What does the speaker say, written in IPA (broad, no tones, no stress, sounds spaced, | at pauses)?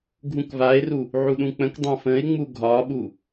ɡʱ ũ k v a e̯ r u | ʕ u ɗ ũ k͡p ə̃ k dˤ ã f ə̃ e̯ ŋ͡m u ɡʱ ɒ ɓ u